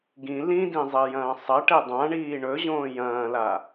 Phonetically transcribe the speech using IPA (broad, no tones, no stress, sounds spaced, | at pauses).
ɡ ĩ l ĩ d ĩ zˤ i j ɐ̃ː sˤ ɐ ʈ e dˤ ã ɳ iː ɳ ɵ ʑ õː j ɐ̃ː l a